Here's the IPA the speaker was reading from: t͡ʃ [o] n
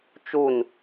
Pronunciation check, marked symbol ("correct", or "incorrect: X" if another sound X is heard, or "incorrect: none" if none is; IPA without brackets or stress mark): incorrect: u